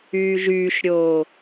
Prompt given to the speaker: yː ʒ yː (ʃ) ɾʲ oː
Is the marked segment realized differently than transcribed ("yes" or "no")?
no